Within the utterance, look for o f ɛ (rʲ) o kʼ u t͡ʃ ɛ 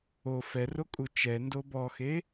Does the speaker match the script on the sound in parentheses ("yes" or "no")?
no